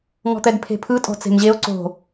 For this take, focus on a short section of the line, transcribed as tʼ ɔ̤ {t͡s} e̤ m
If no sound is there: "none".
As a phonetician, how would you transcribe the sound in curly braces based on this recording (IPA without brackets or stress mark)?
t͡s